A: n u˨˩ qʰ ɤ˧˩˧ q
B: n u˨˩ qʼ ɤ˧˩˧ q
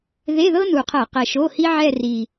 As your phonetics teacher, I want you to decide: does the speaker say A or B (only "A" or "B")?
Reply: A